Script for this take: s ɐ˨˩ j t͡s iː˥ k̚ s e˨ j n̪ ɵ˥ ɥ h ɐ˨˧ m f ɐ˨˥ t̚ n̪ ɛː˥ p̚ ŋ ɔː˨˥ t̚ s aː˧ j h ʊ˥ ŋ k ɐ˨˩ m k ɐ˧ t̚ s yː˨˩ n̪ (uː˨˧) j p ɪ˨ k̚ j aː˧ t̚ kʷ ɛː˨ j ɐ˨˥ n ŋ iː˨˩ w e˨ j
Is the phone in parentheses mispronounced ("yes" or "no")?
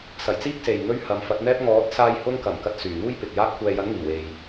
yes